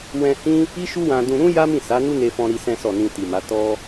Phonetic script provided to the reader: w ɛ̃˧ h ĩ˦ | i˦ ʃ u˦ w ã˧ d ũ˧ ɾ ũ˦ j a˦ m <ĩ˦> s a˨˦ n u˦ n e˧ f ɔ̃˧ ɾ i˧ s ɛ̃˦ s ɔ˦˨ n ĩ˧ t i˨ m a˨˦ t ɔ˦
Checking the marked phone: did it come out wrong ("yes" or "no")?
yes